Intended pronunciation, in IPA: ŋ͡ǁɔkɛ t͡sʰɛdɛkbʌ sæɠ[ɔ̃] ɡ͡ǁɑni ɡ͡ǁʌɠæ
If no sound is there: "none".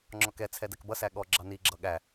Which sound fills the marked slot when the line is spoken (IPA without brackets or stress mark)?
ɔ